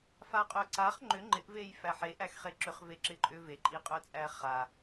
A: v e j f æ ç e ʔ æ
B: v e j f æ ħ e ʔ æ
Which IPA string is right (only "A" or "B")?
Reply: B